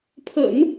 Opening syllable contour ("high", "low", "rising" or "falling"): low